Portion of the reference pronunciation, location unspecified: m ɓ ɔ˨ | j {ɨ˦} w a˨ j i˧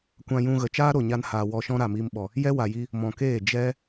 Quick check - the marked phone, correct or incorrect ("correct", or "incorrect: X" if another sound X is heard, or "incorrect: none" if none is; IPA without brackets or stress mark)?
incorrect: ɛ˦